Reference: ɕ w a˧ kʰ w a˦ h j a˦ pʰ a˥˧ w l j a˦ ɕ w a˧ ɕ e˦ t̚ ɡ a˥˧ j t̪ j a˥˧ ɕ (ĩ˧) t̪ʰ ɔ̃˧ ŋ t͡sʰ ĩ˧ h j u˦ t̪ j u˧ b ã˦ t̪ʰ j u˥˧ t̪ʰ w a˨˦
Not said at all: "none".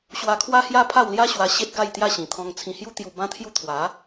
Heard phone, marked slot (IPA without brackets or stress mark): ĩ˨˩